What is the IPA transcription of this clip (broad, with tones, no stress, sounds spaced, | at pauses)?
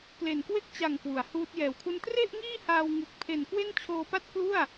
k l e˨˩ n k w e˥˩ k̚ t͡ɕ a˨˩ ŋ k w u˩˦ a̯ h uː˦˥ t̚ j ɛː˨˩ w kʰ u˥˩ n t r e˥˩ ʔ ŋ iː˥˩ h aː˧ w ŋ ɯ˨˩ k̚ pʰ e˨˩ n k w e˥˩ n t͡ɕʰ oː˧ p a˥˩ t̚ k l u˥˩ a̯